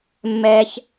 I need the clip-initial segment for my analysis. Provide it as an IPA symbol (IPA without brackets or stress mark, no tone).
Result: mː